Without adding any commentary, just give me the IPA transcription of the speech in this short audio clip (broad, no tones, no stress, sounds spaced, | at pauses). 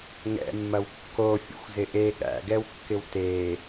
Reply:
ŋ ɛ̰ mː ɐ w kː o fʲ ṵ xʷ z ɪ ʔ e ɠ æ̰ ɡ ɛ w kː ɪ w t e